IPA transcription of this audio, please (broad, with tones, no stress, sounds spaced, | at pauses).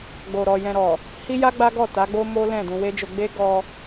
ɡ͡b o˧ ɾ ɔ˧ j ɛ̃˧ ɾ ɔ˨ | h i˦ j a˦ ɡ͡b a˦ ɡ ɔ˦˨ t a˨˦ ɡ͡b o˦ m o˦ l ɛ̃˦˨ d ũ˧ w e˦ d͡ʒ o˧ ɡ͡b e˦ ɡ ɔ˧